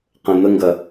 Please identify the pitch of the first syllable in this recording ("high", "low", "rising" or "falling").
low